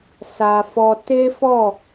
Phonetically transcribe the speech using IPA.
sa˧fɔ˧ te˦fɔ˦˨

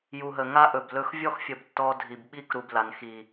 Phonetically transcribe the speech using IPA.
ju˨ɦə˨ ŋa˦ʔɵ˨b lɵ˦x vʲɔ˦xfʲə˨b tːɔ˦dʱi˨b ɓi˦kɾu˨b la˨n xi˨

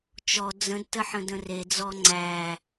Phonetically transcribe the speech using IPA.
t͡ʃɔ d͡zə̃dtəħə̃d ə̃red͡zɔ ŋ͡ǀæ

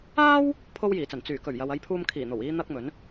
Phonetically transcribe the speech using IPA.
aː˥w | pʰo˥wjiː˨˩t͡sɐ˨˩n t͡syː˨˩ kɵ˨˩ɥjɐ˨wɐ˧j pʰuː˧mkʰiː˨˩n̪o˨˩w iː˥n̪ɐ˥k̚mɵ˨˥n

